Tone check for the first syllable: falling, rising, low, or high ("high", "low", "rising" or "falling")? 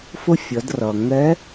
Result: high